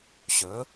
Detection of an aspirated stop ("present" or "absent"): absent